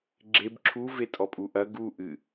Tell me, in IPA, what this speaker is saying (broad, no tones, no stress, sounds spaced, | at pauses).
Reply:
ɡ͡ǁ e b ǁʰ u v e tʼ ɔ pʼ u ʔ ɐ ɡ u ʔ ɨ